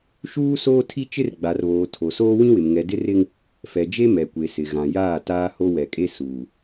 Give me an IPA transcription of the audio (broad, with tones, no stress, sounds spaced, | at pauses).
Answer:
ʃ uː˦ s oː˦ tʰ i˦ t͡ʃ ɪ˦ r ɡ͡b a˨ r β oː˨ tʰ o˨ s oː˦ w ĩ˦ w ɪ˨ m ŋ ɛ˨ d ɪ˦ r ɪ˦ ŋ | f ɛ˨ d͡ʒ e˦ m ɛ˨ kʷ e˨ s ɪ˨ ɣ ã˨ j aː˦˨ t aː˦ h o˦ w ɛ˨ kʼ e˦ s uː˨